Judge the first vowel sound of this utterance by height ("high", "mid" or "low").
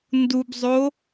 high